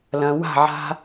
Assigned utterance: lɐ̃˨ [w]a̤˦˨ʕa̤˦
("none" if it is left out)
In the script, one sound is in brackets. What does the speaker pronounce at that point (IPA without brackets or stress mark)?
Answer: w